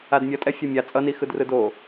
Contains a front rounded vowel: no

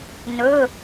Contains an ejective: no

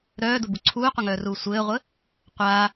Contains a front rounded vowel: yes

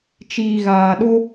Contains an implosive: yes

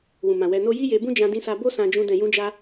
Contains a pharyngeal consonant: no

